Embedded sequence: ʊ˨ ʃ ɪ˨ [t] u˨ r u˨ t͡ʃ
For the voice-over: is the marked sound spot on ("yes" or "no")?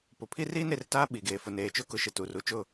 yes